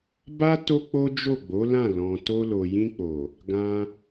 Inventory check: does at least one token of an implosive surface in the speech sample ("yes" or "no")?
no